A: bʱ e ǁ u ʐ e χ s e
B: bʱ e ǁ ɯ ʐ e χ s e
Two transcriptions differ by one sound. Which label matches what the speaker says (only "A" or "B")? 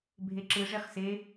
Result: B